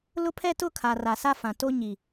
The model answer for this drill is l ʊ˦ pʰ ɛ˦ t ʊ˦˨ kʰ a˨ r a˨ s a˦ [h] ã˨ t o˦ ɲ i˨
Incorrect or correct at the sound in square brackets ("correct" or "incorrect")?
incorrect